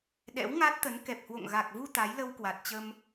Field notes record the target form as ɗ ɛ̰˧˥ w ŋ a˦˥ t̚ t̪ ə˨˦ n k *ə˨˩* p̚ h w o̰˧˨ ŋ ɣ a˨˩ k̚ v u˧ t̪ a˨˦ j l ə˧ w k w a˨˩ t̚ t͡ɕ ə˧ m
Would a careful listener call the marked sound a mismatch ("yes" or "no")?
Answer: yes